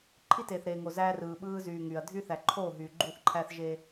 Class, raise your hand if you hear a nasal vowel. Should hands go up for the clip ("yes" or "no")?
no